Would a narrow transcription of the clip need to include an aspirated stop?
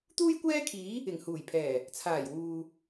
yes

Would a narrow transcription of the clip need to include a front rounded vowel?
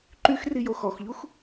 yes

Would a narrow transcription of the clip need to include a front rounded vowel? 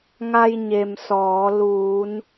no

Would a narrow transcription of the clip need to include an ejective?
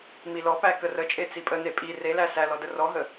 yes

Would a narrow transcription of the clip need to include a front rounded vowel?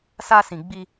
no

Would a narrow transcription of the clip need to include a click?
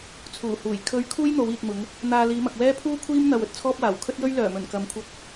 no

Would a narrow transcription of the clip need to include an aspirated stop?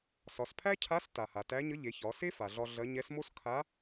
yes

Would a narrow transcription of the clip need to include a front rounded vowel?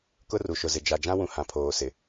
no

